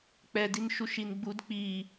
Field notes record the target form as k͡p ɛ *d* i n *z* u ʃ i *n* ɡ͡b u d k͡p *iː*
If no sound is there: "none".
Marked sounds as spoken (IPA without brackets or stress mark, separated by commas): d, ʃ, n, i